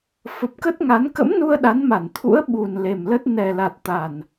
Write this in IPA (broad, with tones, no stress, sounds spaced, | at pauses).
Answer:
f ə˨˩ p̚ k ə˦˥ t̚ ŋ a˨˦ n k ə̰˧˥ m n u˧ ə̯ ɗ a˨˦ n m a˧˩ n t̪ʰ ṵ˧˥ ə̯ ɓ u˨˩ n l e˨˩ m l ə˦˥ t̚ n ɛ˨˩ l a˨˩ t̚ t̪ a˨˩ n